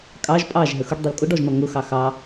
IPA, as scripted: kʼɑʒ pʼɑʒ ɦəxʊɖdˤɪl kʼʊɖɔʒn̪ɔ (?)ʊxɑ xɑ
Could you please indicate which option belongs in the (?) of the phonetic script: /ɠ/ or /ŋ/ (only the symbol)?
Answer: ŋ